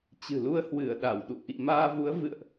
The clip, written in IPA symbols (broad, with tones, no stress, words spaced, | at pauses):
t͡ɕɨ̤˨˩lu˧ə̯ hwɨ˧˩ə̯ ɗa˧˩w ɗṵ˧˨ʔḭ˧˨ maː˧vu˨˦ə̯vɨ̰˧˨ə̯ʔ